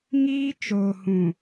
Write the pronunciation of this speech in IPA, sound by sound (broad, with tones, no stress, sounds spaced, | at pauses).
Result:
ŋ iː˦ t͡ʃ oː˨ h ũ˨